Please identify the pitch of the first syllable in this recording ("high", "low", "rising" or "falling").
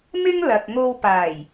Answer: high